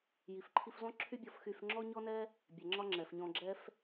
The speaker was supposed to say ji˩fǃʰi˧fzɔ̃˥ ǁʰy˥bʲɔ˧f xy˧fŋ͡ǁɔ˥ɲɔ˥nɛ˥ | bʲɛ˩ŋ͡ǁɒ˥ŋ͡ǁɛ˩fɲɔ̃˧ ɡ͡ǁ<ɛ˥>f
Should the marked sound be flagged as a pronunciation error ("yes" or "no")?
no